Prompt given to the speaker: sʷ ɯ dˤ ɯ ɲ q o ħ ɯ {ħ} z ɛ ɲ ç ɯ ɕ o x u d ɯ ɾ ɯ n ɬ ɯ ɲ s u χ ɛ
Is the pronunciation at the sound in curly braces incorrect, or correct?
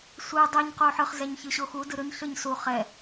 incorrect